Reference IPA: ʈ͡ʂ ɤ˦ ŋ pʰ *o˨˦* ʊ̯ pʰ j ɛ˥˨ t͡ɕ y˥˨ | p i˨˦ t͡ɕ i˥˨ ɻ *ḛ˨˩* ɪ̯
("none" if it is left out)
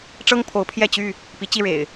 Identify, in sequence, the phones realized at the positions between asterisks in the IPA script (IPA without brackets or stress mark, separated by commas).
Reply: o˨˦, ḛ˨˩